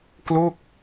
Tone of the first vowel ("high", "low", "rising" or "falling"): falling